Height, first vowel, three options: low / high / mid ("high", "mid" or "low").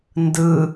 high